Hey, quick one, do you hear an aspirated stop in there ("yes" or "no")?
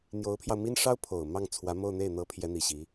yes